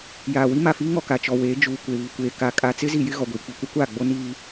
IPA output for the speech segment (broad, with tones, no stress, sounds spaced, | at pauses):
j aː˨ w i˦ m a˨ f iː˦ ŋ ɔ˨ k a˨ t͡ʃ ɔ˨ w eː˨˦ d͡ʒ uː˨ kʷ e˨ β i˨ kʷ eː˨ k a˨ kʼ a˨ t͡s ɪ˦ z i˨ j ɪ˦ ɣ ɔ˨ ɡʷ iː˨ k͡p i˨ kʷ ɛ˦ kʷ aː˦˨ ɡ͡b o˦ n iː˦